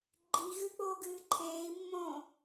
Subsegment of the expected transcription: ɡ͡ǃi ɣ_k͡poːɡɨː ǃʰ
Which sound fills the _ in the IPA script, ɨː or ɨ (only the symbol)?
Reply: ɨ